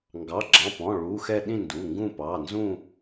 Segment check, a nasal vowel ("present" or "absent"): present